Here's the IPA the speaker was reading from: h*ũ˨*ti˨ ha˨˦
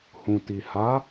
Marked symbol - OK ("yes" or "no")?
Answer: yes